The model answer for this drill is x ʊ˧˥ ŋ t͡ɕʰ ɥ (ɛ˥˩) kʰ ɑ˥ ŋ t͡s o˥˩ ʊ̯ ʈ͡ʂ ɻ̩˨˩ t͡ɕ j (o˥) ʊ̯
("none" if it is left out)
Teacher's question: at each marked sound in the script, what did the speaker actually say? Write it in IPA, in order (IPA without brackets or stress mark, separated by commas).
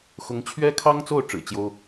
ɛ˥, o˥